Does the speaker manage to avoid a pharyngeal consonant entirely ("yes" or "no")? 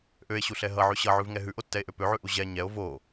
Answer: no